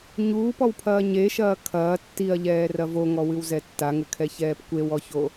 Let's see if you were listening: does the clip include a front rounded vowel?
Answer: no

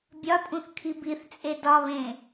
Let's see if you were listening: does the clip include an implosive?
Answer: no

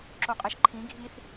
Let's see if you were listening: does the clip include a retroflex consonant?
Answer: no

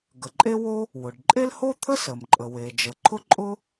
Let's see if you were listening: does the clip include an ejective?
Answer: yes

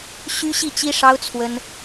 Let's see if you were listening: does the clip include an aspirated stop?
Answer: yes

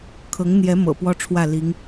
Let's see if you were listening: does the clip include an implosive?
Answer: no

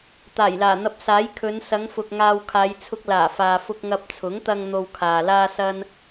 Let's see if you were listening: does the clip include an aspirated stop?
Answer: yes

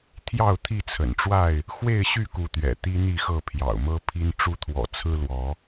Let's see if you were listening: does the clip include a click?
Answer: no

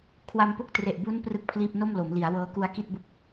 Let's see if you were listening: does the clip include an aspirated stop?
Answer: yes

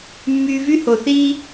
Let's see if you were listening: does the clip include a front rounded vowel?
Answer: yes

